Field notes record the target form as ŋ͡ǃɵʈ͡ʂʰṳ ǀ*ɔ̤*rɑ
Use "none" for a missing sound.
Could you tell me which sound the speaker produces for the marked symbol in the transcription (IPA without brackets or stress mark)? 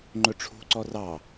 ɔ